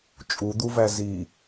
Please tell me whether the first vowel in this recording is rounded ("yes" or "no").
yes